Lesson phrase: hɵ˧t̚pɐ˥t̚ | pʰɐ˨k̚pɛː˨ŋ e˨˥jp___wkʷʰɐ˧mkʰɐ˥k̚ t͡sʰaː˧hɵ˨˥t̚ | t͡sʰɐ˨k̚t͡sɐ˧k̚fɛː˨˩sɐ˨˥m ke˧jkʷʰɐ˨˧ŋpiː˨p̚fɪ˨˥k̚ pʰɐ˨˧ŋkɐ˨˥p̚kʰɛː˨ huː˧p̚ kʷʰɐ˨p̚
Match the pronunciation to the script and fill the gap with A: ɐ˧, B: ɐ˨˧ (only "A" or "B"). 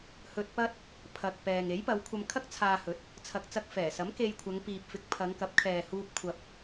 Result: B